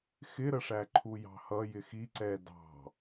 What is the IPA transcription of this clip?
x ɪ ɾ ə ʂ æ ǃʰ u j ɑ̤ h ʌ j ɪ x i ǀ ɛ d ɑ̤

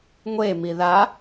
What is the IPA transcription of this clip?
ŋʷ e m i ð a

